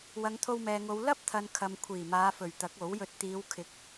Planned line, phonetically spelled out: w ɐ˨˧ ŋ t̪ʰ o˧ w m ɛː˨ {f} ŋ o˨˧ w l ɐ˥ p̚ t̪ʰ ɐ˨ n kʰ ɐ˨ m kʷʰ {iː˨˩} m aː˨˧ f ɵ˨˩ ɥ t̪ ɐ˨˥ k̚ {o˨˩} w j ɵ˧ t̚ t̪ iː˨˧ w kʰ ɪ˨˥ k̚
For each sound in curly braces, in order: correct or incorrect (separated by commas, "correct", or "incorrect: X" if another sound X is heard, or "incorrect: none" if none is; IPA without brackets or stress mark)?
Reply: incorrect: none, correct, incorrect: o˨˥